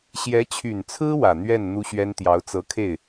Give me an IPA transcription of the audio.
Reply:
ɕ j ɛ˧˥ t͡ɕʰ y˨˩ n t͡sʰ ɹ̩˥ w ä˨˩ n̪ ɥ ɛ˥˩ n n̪ u˥ ɕ ɥ ɛ˥ n t̪ j ɑ˧˥ ʊ̯ t͡s ɤ˧˥ kʰ e˥˩ ɪ̯

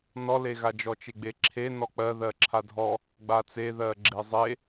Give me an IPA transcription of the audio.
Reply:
n ɔ l e ɣ a d͡ʒ ɔ t͡ʃ e ɡ͡b e ǁʰ e n ɔ k͡p ɜ ð ɜ ǁʰ a dʱ ɔ | ɡ͡b a t͡s e ð ɜ ɡ͡ǁ e zˤ e

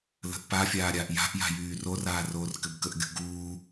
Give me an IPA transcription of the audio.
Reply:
l ə̤ ʔ p a fʲ aː ɾʲ aː ʔ j a̤ ʔ j a̤ j yː r o r aː r oː r k ɘ b k ə ʔ ɡʲ ṳ ɡ uː

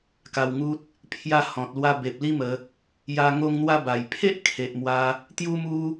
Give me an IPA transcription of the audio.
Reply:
k a˧ w ŋ u˦ t̚ | pʰ j a˧ h ɔ̃˨ t̚ l w a˧ b e˨ p̚ l i˦ m ə˧ | j a˧ ŋ o˧ ŋ n̪ w a˧ b a˨˩ j pʰ e˦ ʔ kʰ e˨ ʔ m w a˧ | t̪ j u˦ m u˦

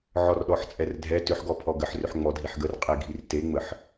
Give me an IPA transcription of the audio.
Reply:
ʕ ɔ r ɗ ɔ ħ t͡sʼ ɛ r dʱ ɛ t ʏ ħ ɡ ɔ pʰ ɔ ɡ ə ħ r ʏ ħ ŋ͡m ɔ dʱ i ħ ɡ ə r qʼ e ɡʱ i r t e ŋ͡m ə ħ

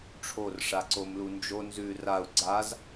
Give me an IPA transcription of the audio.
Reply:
ʈ͡ʂʰ o r ʂ a ǀ o m l u n d͡ʒ o n z ʉ r a u̯ ɡ͡ǀ a z

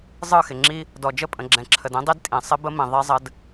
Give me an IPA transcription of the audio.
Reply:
zˤ ɯ˦˨ x ɪ˨ ŋ͡ǁ i˦ | d ɔ˨ d͡ʒ ə˦˨ pʼ ə̃˨ ɡ͡ǁ ɛ̃˨ ǁʰ ə˨ d ĩ˦ dˤ i˦ d tʼ ĩ˨ sˤ ɪ˦ b ə˦ m ĩ˨ ðˤ i˦ zˤ ə˦ d

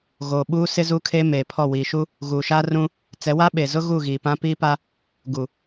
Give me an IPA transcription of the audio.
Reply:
ɣ oː˨ ɓ uː˦ s ɪ˦ z u˦ kʰ e˦ m eː˨ pʰ ɔ˦˨ w i˨ ʃ u˦ | ɣ uː˨ ʃ aː˦ r ũ˦ | t͡s ɛ˨˦ w a˦ ɓ e˨ z ʊ˦ ɣ u˦˨ ɣ iː˨ p ã˦ p iː˦ p a˦ | ɡ u˨

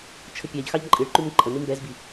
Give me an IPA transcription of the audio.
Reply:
t͡ʃʰ ə pʲ a ʎ x ɑ ʎ ǃʼ ɨ ɭ ǃ ʉ m ǃʼ ə n ɨ m b ɛ z b i

